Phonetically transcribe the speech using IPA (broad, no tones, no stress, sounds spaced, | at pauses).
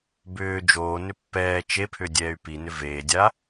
b ʏː d͡ʒ oː n ʏ pː ɛː t͡ʃ e pʰ ʏ dʲ ɛː y̯ p i n ʏ v eː dʲ a